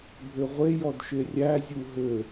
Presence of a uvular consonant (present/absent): present